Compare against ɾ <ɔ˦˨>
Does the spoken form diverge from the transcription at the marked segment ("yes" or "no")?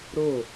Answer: yes